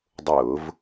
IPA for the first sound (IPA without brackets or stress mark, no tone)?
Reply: dˤ